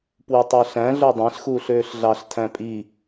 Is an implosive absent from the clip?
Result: yes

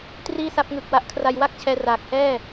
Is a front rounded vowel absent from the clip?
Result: yes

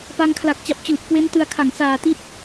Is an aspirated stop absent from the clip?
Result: no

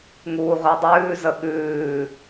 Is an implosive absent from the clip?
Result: no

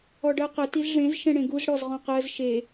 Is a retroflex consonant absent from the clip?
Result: no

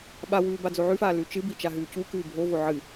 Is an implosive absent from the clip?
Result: no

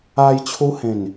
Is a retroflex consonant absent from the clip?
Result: yes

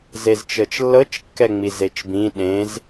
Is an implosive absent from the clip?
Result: no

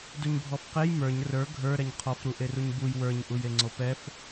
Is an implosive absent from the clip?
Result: yes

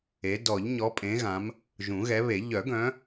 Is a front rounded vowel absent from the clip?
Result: no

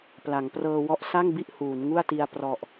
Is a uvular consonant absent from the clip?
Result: yes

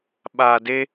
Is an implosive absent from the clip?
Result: no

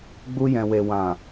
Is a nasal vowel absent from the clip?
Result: no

